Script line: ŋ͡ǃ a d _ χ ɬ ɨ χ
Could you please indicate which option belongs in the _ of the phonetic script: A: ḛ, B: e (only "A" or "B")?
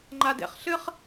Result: A